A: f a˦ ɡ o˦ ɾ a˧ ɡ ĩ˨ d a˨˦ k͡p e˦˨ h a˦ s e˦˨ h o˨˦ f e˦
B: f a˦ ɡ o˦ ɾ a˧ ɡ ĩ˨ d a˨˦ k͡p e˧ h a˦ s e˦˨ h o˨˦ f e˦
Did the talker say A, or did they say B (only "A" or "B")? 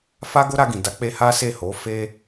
B